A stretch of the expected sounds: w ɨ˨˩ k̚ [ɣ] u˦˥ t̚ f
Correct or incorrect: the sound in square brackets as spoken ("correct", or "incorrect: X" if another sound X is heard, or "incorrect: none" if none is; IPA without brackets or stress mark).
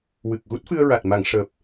correct